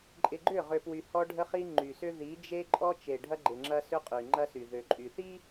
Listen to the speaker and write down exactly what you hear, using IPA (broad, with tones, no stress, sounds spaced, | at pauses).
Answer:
ǃʼ ɪ˨ ɡ͡ǃ ʏ˦˨ ʁ ʏ˨ p w y˨ h ɔ˦ ɖʱ ə˦ χ i˦ ŋ͡ǃ y˨ s ʏ˦ ð i˨˦ d͡ʒ e˦ ǃʼ ɔ˦ t͡ʃ e˨ ɖʱ ɐ˦ ɡ͡ǃ ɪ˨ ŋ͡ǁ ɐ˦ s ʏ˦ qʼ y˨ ŋ͡ǃ ɐ˦ s y˨ ð ø˨ ǃʼ y˨ θ i˦